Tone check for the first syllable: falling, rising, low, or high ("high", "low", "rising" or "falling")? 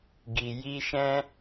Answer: low